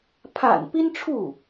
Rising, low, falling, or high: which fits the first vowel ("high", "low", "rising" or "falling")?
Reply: low